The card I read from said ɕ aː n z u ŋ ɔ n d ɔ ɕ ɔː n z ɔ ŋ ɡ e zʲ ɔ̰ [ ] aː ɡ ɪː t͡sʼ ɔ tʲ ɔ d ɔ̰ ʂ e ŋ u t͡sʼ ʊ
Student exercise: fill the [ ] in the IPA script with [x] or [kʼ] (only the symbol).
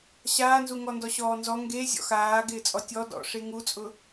x